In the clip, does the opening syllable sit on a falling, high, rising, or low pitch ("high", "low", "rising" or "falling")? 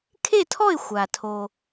falling